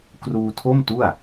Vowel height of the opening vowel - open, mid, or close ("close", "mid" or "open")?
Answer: close